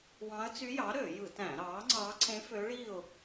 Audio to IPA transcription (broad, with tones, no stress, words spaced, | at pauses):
wɑ̃˧˥ə̯t͡sy˧˥jɑ˩˥ ɾø˧˩˧jɯ˧˩˧tæ̃˧˩˧ ɾɑ˩˥ ŋ͡ǀɑ˧˥ ǀẽ˧˥fø˧˥ɭi˥˨ʊ̯